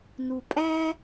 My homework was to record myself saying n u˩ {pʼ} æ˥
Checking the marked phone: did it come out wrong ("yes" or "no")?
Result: no